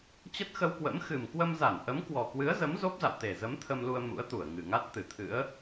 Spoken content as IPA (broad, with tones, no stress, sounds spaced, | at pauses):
t͡ɕ ə˦˥ t̚ x ə˧ w k w ə̰˧˥ m x ɨ˨˩ m k w ə˧ m z a˧˩ n ʔ ə˨˦ m k w ɔ˨˩ k w ɨ˨˦ ə̯ z ə˨˦ m z o˦˥ p̚ z a̰˧˨ w t̪ e˨˩ z ə˨˦ m t̪ʰ ə˧ m l u˧ ə̯ m ṵ˧˥ ə̯ t̪ u˧˩ ə̯ ŋ ɨ˨˩ ŋ a˦˥ t̚ t̪ ɨ˧˩ t̪ʰ ɨ̰˧˥ ə̯